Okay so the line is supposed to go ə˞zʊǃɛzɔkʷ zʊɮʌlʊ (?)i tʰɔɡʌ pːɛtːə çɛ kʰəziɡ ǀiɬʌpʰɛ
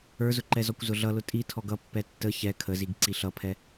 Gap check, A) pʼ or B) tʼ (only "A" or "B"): B